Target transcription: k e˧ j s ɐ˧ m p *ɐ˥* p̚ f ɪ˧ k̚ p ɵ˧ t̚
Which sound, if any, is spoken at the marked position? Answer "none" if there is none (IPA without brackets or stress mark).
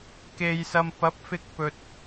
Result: ɐ˨˥